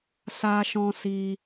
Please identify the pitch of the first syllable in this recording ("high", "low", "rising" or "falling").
high